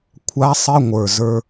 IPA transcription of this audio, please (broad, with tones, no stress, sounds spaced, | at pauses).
kʷʰ a˦˥ sˤ ɪ˧˥˧ ŋʷ ə˞˨˩ z ə˞˧